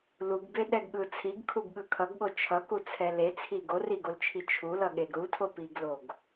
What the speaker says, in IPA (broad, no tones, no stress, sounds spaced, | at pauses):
l u ɡ b e ɗ ɛ ɡ ɠ ɯ t͡sʰ i ɡ kʰ u ɡ ɠ ɯ kʰ ʌ ɡ ɠ o t͡ʃʰ ʌ k u t͡sʰ ɛ l e t͡sʰ i ɡ o r i ɡ o l t͡ʃʰ i t͡ʃʰ u l ʌ ɠ e ɡ ɾ u tʰ o p i ɡ l o ɡ